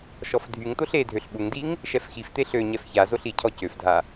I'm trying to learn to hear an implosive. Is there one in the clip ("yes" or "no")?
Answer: yes